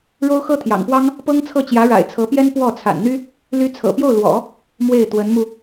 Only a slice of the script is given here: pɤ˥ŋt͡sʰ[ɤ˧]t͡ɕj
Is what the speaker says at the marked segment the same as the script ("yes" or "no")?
no